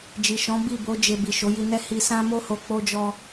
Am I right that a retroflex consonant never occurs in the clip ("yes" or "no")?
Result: yes